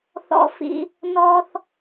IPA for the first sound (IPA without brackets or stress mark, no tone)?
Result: θ